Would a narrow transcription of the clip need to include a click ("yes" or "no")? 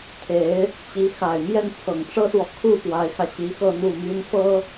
no